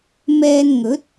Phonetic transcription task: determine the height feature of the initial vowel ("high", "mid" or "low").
mid